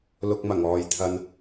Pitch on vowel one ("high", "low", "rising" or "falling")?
low